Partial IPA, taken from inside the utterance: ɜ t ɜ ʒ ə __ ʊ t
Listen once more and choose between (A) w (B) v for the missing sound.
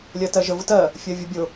B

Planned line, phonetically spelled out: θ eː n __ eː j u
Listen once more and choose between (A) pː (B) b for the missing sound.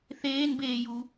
B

